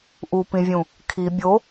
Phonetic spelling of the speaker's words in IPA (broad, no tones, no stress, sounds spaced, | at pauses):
ʔ u p ĩ vʲ ũ | kʰ i bʲ o